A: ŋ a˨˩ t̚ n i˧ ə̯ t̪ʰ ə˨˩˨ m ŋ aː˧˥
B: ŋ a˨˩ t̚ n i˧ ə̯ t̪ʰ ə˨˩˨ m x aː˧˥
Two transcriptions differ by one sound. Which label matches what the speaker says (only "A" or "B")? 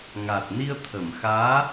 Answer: B